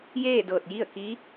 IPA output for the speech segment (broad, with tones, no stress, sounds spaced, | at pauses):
j eː˥˨ d ɤː˧˩ t̚ j i˥˨ ə̯ k i˧˥